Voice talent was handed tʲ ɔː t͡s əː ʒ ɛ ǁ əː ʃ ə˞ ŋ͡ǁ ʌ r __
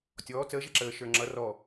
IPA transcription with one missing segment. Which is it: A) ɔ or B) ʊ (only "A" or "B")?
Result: A